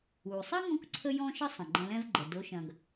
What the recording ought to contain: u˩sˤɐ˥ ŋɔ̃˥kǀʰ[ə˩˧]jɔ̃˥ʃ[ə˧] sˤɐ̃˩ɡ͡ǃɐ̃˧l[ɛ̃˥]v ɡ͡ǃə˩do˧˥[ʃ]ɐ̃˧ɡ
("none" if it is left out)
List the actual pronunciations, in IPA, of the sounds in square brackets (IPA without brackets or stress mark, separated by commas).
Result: ə˥, ə˥, ɛ̃˥, ʃ